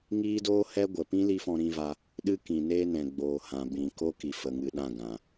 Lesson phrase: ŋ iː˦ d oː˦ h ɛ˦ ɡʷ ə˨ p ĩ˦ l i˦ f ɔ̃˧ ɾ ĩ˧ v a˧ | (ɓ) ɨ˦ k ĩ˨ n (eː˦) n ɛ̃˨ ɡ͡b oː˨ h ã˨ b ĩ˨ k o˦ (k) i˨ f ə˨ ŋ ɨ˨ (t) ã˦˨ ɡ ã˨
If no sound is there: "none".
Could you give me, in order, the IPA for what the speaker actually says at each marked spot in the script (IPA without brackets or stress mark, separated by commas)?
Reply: ɗ, eː˦, k, ɗ